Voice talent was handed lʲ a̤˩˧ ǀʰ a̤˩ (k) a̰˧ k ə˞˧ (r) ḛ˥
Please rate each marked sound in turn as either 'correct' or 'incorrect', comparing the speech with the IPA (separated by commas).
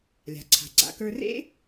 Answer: incorrect, correct